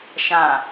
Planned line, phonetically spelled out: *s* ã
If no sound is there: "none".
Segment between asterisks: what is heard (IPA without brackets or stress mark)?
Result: ʃ